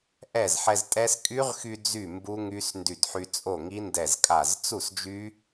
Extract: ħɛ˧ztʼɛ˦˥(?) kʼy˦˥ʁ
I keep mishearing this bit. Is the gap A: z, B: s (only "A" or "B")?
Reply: B